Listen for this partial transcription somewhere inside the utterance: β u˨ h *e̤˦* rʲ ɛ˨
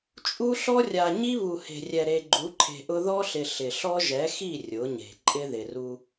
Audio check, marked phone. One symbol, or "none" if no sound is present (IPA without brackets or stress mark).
e̤˨